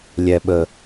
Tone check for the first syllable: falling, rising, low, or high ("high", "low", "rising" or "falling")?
low